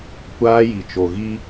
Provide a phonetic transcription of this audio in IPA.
kʷaː˦ji˨t͡ʃo˨ ɣi˦

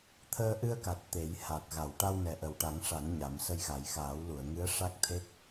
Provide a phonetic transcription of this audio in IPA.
t̪ʰəː˧ʔɨ˧ə̯ka˨˩t̚ t̪e˨˩˦j ha˨˩t̚ ɣa˨˩˨wʈa˧wnɛ˨˩ ʔə˨˩wʈa˨˩˦ŋʂa˨˩˦n ɲa˨˩˦m sə˧jɣa˨˩˦j xaː˨˩˦wlu˨˩˨ə̯ŋɨ˧˥ə̯ ʂa˦˥k̚t̪ʰe˦˥k̚

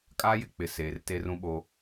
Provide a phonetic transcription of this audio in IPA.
kʼaː˦jɪ˨k͡pɪ˨ seː˨rte˦rũ˦ɓo˦

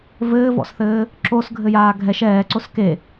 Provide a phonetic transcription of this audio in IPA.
vɘːvɔ̰sθɘː | ǁosɡʱɘjaː ɡʱɛʃ ɛːǀos ke

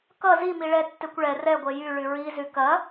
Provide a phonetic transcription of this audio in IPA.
kʌ zimi ɭɛtːekʷ ɭɛ rɛɡʷɛ jyɭy ɹizy kɐ

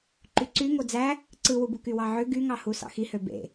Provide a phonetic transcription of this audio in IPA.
ǃyǀy ŋod͡zæ | ǀɯwubu kywɑʕø ɡyŋɑhu sɑ̰xihø bḛ

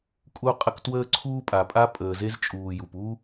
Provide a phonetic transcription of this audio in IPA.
kʼu˦qʼə˦k twəː˦ǀʰuː˦pʼa˨ pʼa˦pʼəː˨ze˦zt͡ʃʼuː˨ ju˨pu˦

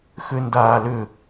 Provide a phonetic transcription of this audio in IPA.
xʏ ndaːlʏ

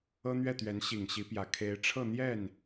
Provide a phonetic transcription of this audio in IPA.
ɤ˥n̪ɥɛ˥˩t̪ɥɛ˧˥n ɕi˨˩ŋɕi˧˥pjä˨˩ kʰe˧˥ɪ̯ʈ͡ʂʰɤ˥˧n̪jɛ˥˩n

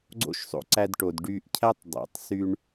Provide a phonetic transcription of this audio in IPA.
ɡ͡ǀo̰˥ʃsˤo̰˧ ǀæ˧dʈo˩d ɖy˧ʔcʰæ˥tˤdˤḛ˩tˤ sy˧ɳ

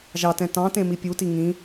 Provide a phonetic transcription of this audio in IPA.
ʒɑtɛ̃ tɑ̃tẽmi pʲuti ŋĩ

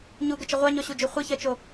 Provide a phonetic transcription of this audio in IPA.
ɲuɡət͡ʃə ʁʷaɲɔɕud͡ʒu χʷiçɜt͡ʃo

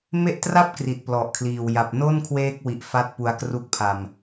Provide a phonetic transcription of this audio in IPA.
me˦˥ʔtra˥˩p̚ kri˨˩t̚plɔ˨˩ʔkʰliː˨˩w ja˨˩p̚no˥˩nkʰweː˦˥k̚wi˨˩ʔ fa˦˥t̚pu˧a̯kru˦˥k̚pʰa˧m

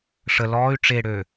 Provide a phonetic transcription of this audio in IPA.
ʂə lɔːy̯ ʈ͡ʂeɽø

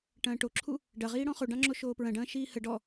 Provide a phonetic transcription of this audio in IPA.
ʈɐ̃ːʈoǁʰu | ɖɐʁiːɽɔ̃ χoɖɑ̃ŋ͡ǁo ʃoːpɹɐ̃ɖɐ̃ː ʃiːhə ɖɔ

